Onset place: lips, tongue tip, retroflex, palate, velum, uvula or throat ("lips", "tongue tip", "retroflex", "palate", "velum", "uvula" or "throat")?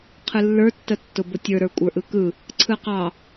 uvula